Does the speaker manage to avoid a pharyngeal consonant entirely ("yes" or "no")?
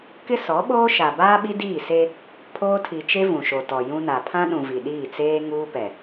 yes